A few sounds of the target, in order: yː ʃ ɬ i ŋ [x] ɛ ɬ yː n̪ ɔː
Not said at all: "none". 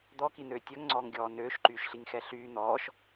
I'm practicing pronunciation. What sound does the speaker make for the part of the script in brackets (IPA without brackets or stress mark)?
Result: x